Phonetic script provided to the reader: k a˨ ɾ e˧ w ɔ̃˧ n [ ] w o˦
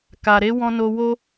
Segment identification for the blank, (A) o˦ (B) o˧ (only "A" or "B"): B